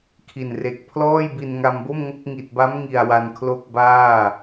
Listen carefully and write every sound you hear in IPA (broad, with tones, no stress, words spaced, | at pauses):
kʰi˨˩nre˨˩k̚ pʰlɔː˥˩jbi˧n ŋa˧mbo˥˩mŋo˥˩k̚ ŋi˨˩t̚ba˦˥mŋi˨˩a̯ wa˧nkʰlo˥˩k̚ baː˥˩